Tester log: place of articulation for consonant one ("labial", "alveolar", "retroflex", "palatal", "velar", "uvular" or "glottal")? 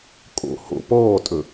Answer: velar